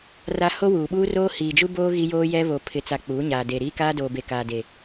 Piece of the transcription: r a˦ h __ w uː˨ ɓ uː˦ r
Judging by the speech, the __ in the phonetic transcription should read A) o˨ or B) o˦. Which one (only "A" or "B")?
B